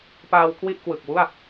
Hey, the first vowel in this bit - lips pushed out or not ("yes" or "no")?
no